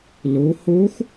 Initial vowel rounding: rounded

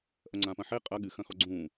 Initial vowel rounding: unrounded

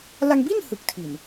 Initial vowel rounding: unrounded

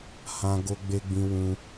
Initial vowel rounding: unrounded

